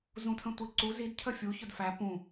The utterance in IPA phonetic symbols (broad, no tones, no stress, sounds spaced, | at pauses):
z ũ tʰ ə̃ tʷ i ǀ u z i d cʰ ə fʲ u ç ʊ d f æ p ũ